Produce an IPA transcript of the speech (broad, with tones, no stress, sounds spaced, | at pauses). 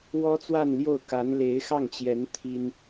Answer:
w ɔ˥ t͡s w a˥˧ n l j o˥˩ ʊ̯ k a˧˥ n l e˧˥ ɪ̯ x ɑ˥˩ ŋ t͡ɕ j ɛ˧˥ n t̪ʰ i˥ n